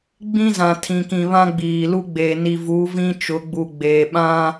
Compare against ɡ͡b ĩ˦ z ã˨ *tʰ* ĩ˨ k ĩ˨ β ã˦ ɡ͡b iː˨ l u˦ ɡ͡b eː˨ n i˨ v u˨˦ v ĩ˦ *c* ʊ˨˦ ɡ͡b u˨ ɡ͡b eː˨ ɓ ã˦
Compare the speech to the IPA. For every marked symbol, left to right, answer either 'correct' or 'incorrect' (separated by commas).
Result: correct, incorrect